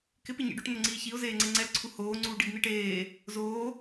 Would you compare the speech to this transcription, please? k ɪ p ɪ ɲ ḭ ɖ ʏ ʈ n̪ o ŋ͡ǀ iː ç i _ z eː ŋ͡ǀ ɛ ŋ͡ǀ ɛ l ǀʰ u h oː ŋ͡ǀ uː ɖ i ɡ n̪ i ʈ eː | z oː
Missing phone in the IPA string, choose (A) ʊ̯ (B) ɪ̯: A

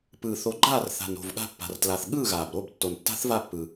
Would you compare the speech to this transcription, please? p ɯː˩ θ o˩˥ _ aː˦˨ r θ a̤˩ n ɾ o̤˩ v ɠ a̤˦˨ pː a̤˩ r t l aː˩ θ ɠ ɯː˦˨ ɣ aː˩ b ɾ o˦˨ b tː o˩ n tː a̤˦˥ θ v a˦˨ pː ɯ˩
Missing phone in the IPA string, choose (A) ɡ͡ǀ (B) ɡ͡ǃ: B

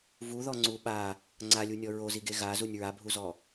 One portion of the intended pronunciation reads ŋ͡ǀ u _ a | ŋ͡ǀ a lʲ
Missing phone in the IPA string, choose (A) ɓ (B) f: A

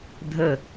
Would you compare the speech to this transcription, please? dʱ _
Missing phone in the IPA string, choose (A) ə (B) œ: A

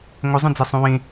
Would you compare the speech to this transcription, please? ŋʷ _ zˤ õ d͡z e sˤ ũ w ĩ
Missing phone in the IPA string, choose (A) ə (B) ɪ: B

